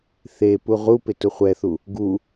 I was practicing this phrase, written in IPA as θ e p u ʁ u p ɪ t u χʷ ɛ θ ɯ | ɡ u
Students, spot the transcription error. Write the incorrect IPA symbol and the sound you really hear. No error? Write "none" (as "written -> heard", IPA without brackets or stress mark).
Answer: ɯ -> u